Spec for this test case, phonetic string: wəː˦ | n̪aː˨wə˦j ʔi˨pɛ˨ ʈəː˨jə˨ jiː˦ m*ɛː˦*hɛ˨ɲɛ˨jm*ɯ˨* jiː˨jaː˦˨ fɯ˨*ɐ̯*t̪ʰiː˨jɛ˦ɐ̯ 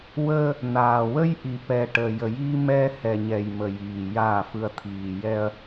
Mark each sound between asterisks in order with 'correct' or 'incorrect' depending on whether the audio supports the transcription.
correct, incorrect, correct

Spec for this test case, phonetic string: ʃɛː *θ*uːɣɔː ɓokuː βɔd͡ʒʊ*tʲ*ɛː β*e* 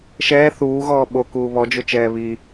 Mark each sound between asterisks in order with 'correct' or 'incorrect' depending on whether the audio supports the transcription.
correct, incorrect, incorrect

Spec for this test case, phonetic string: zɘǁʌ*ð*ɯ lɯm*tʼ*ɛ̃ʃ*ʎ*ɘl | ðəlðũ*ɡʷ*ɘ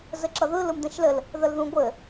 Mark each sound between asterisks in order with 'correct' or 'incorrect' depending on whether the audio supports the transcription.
correct, incorrect, incorrect, correct

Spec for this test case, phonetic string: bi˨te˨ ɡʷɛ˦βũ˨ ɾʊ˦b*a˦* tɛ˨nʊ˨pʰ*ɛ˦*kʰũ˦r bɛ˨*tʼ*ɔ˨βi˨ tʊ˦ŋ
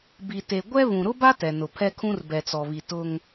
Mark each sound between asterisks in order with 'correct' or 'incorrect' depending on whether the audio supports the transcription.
correct, correct, incorrect

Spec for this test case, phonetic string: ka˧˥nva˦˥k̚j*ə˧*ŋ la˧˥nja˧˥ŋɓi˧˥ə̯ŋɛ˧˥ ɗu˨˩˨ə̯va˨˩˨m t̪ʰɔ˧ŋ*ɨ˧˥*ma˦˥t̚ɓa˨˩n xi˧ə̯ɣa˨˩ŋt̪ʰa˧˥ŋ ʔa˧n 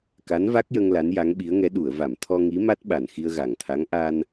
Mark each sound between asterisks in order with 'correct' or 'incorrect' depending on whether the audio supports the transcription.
correct, incorrect

